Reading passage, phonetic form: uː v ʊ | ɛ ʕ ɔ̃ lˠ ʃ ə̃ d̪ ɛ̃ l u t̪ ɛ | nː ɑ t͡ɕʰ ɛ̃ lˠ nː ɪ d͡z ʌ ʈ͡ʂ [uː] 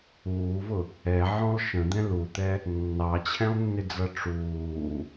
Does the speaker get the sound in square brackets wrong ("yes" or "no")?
no